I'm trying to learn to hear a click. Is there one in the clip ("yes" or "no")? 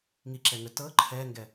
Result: yes